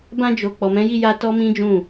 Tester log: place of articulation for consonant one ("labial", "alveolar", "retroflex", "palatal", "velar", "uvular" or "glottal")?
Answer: labial